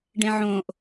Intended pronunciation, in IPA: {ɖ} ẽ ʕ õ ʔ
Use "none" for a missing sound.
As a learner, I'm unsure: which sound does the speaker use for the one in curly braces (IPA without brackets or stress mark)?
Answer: ɖ